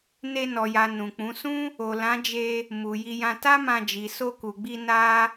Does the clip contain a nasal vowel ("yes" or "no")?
yes